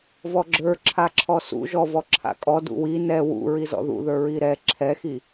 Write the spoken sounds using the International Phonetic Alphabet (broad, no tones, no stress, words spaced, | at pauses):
vɔɡ͡ǁə˞ ǁʰaǁʰɔsṵ ʒɔvɔǁʰa̰ kʼɔ dṵwi nɛ wṵ ɹizɔ̰ðṵðə˞ ɹiɾɛ ǁʰɛxi